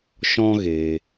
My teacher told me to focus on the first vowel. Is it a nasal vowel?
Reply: yes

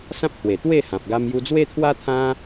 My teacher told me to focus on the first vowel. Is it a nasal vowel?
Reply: yes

